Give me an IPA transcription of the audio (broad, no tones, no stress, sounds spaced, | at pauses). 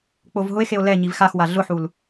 k͡p o v ɦ ʊ e̯ x e o̯ l ɛ ɲ i v x a x w a ɮ ʊ ħ u l